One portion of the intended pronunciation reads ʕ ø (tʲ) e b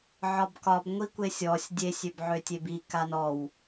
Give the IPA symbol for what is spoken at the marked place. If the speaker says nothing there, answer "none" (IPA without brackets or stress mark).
tʲ